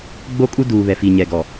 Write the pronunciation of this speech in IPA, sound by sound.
ɡ͡b o˦ kʼ u˦ d uː˨ β ɛ˨ f i˨ ɲ ɛ˨ ɡ ɔ˨

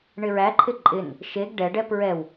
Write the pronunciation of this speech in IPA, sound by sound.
ɳ ɪ ɹ æ ǃʰ ɪ ǃʼ ɪ n | ʃ e ɡ ɖ ɛ ɖ ɛ p ɹ ɛ w

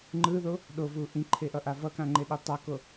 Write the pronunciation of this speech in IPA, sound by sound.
ŋ͡ǃ ɯ ð o | ɗ o v u ʔ ĩ ǃʰ e ʔ ʌ ʔ a v ʌ k ã ŋ͡ǃ e ɗ i tˤ ʌ k o

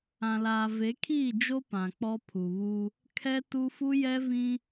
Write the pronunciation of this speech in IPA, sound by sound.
ã˨ l aː˨ v e˨˦ kʰ iː˦˨ d͡ʒ o˦ p ã˨ k͡p ɔ˦ pʰ u˨ β u˦ | kʰ ɛ˦ t u˦ f u˦ j ɛ˦ v ĩ˦

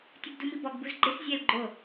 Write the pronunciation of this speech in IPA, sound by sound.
tʲ u ɡ d u m i b ɔ ɡ b u z ɡ͡ǃ ɪ s zʲ ɛ l ɡ͡ǃ o

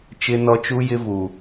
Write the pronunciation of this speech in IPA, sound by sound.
t͡ʃ ɪ˦ n ɔ˦ t͡ʃ u˦ j ɪ˦ v u˨

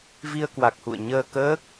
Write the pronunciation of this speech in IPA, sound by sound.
v i˧ ə̯ k w a˨˩ k̚ h ṵ˧˨ ə̯ ɲ əː˧ k əː˦˥ k̚

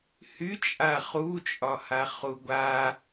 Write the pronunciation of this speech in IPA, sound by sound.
h y t͡ʃʼ a χ u t͡ʃʼ ɒ h a χ u ɡʷ a

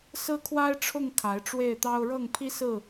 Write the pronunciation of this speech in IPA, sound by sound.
s ɹ̩˦ kʰ w a˦ ɪ̯ ʈ͡ʂʰ ʊ˥˨ ŋ kʰ a˨˦ ɪ̯ ʈ͡ʂ w e˥˨ ɪ̯ t̪ ɑ˦ ʊ̯ ɻ ɤ˥˨ ŋ pʰ i˦ s ɹ̩˥˨

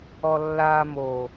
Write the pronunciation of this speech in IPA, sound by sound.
ɔ lː aː m o

